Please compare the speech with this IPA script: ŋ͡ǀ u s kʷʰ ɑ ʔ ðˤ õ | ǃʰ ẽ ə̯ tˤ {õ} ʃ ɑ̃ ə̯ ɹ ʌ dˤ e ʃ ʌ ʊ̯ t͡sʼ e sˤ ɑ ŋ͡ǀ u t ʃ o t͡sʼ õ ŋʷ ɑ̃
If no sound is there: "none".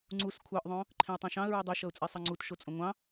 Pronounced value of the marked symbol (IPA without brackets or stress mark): õ